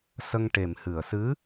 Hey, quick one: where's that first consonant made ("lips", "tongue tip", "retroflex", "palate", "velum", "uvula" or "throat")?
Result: tongue tip